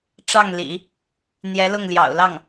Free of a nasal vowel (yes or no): yes